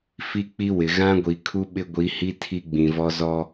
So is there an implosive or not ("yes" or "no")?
yes